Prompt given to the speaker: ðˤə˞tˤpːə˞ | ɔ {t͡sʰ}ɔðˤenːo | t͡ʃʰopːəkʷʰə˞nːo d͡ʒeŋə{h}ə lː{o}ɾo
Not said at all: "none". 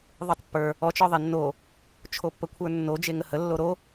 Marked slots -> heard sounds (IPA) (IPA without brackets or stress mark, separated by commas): t͡ʃ, h, o